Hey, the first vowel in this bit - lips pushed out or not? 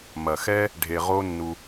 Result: no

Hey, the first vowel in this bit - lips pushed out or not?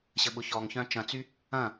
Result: no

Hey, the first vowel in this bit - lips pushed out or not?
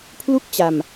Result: yes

